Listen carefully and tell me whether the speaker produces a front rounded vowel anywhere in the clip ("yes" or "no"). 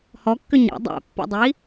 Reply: yes